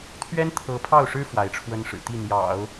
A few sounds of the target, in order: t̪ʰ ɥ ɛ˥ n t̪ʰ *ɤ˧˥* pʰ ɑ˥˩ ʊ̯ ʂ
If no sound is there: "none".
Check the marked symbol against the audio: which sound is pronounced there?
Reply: ɤ˧˥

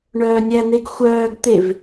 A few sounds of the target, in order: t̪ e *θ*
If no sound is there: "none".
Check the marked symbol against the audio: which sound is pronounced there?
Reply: v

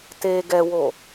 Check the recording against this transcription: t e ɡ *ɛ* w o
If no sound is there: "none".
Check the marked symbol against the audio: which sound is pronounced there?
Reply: ɛ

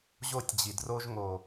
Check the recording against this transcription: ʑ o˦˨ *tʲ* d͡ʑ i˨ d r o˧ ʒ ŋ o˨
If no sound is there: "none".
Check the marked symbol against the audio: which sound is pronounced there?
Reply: tʲ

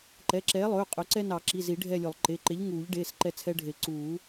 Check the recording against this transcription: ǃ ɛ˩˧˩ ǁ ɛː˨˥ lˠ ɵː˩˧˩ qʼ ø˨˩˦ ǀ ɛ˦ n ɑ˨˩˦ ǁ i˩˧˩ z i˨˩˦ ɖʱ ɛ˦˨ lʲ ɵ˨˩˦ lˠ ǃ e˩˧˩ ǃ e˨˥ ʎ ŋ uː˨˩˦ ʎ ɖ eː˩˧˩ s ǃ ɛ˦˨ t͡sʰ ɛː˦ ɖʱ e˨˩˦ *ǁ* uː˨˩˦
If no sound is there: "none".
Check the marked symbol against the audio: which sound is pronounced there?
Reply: ǀ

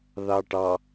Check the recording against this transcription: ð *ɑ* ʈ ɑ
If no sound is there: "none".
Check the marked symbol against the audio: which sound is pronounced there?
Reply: ɑ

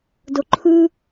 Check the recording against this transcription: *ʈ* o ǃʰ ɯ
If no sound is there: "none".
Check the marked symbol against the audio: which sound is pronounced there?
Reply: d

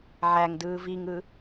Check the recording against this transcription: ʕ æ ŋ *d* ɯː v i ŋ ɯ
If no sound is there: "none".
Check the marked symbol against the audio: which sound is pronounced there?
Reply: d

